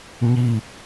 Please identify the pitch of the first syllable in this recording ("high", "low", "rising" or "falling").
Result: falling